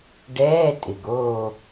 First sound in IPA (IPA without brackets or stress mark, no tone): ɖ